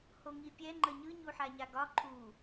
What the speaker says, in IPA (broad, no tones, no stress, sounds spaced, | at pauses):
h o ŋ i pʲ ɛ ŋ͡ǃ ə ɲ ɯ ɲ u ħ a ɲ a ɡ ɒ ǃʰ u